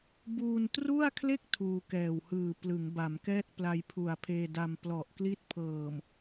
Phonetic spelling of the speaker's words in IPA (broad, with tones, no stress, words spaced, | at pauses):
buː˧ntru˥˩a̯kʰle˥˩k̚ tʰuː˧kɛː˨˩w hɯː˨˩ plɯ˩˦ŋba˩˦mkɛː˥˩t̚pla˧j pʰu˨˩a̯pʰeː˧da˧m plɔ˨˩ʔkli˥˩t̚ pʰɤː˨˩m